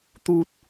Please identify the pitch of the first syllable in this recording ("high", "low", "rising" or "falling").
high